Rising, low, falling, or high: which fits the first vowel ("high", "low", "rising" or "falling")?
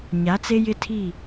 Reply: rising